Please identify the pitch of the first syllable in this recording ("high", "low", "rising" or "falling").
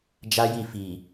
high